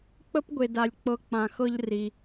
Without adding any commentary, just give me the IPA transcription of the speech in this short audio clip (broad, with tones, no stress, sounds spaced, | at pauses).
k͡p ə˥ p ɡʷ e˨ d a˨ lʲ k͡p ɤ˦ k͡p ã˨ x ɤ˦ ʎ r i˩